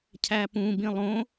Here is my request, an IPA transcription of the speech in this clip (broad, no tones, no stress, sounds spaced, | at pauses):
cʰ æ p ũ b ĩ lˠ õ